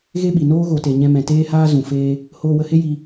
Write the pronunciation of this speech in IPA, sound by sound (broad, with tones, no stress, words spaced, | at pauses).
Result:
ɣe˦ɓi˨ noː˦ɣo˨ te˨ɲɛ̃˧mɛ̃˨ teː˦haː˦ zũ˨ feː˧ | hoː˧wə˧he˦ ji˧